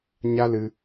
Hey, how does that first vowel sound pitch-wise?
high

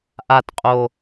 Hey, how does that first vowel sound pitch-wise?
low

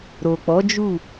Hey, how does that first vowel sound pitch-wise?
low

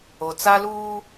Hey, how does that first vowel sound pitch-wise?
low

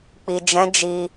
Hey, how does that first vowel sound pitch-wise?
low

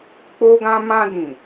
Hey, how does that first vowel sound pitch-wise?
high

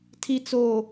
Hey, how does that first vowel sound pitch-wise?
low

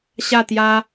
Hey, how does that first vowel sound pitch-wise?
falling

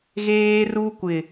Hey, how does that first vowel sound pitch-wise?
high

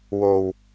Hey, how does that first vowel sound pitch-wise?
low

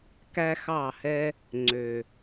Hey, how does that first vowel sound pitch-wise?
high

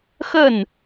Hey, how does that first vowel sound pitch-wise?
falling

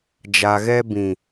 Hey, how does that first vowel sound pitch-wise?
low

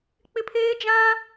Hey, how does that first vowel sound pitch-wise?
high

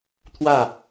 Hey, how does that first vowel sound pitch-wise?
falling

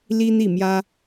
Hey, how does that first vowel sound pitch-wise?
high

